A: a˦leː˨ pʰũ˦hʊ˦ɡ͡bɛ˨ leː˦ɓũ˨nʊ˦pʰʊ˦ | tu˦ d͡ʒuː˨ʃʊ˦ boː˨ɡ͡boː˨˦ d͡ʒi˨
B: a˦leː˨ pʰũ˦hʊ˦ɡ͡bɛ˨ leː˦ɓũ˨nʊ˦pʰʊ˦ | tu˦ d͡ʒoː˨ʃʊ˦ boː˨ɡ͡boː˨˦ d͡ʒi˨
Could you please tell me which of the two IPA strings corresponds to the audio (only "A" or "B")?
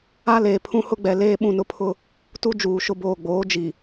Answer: A